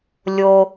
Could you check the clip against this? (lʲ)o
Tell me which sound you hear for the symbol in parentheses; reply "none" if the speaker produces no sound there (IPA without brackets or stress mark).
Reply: lʲ